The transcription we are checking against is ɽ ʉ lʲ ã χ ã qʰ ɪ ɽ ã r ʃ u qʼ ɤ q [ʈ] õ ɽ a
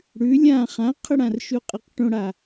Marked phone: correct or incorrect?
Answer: correct